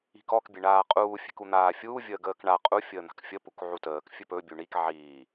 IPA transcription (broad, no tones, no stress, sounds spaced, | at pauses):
i̤ k ɔ k bʲ e ɳ aː qʼ uː fʲ e̤ k u n̪ aː fʲ uː vʲ əː ɡ əː k ɳ a qʼ u fʲ əː n̪ a̤ k fʲ ə p u k ʕ u t əː k fʲ ɵ p ɵ bʲ u ɳ i k ʕ iː